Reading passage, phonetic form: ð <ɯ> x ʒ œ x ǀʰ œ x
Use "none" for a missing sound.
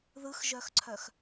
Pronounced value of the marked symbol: ɯ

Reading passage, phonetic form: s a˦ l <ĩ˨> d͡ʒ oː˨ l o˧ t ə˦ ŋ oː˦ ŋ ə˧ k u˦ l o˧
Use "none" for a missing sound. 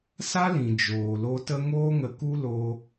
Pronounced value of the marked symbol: ĩ˨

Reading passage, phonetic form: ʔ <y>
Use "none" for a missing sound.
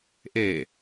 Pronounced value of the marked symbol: e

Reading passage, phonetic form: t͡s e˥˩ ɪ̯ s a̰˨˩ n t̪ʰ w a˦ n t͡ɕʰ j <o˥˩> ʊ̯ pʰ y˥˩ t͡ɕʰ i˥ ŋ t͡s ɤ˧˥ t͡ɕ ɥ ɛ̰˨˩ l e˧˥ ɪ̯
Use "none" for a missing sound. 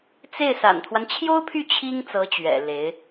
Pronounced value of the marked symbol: o˥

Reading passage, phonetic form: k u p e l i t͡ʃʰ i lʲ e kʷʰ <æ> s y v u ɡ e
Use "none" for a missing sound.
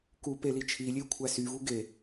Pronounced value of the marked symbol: æ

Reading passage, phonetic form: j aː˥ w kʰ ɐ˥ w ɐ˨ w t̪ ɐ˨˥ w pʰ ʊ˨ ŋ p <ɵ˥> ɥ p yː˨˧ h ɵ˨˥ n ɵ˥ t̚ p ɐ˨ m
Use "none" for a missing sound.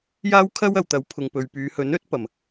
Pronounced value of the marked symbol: ɵ˨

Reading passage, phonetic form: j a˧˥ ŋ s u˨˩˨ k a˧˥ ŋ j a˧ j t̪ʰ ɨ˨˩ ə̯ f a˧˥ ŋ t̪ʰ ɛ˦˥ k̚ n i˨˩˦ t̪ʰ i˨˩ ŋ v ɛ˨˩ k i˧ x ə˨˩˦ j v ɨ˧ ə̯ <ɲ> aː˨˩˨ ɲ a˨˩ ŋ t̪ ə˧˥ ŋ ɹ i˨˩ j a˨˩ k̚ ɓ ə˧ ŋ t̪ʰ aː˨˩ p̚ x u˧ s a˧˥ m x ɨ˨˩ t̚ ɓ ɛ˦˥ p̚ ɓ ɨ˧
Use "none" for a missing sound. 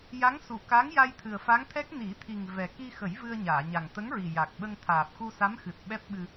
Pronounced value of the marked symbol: ɲ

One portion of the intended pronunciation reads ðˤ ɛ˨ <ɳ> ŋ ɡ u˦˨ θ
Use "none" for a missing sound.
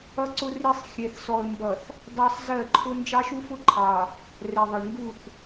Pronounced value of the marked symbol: ɳ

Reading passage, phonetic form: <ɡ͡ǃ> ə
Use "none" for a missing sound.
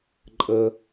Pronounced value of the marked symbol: ǃʼ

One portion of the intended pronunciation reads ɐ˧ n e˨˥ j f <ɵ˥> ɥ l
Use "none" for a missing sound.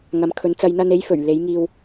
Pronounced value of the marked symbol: ɵ˨˩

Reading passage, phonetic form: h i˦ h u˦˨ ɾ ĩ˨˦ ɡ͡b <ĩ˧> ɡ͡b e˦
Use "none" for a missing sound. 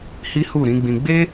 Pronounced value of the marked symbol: ĩ˧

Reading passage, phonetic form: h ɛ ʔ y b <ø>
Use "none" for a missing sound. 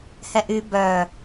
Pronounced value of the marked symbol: œ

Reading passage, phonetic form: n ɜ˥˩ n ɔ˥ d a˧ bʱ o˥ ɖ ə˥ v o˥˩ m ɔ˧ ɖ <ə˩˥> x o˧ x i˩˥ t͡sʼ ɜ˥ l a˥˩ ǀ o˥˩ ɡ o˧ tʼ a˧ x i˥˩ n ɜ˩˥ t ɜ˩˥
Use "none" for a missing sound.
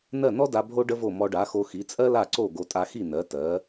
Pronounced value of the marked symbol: a˩˥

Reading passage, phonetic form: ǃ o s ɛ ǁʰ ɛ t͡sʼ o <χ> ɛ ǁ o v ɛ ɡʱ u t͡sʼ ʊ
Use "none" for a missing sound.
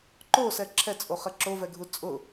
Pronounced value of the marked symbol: χ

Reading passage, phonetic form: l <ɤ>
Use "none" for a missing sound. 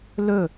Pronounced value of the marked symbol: ɵ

